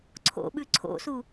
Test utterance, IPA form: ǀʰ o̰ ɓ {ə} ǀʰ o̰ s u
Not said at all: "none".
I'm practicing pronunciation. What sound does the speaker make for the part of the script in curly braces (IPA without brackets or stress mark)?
ʉ